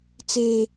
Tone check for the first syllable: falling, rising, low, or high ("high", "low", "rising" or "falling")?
high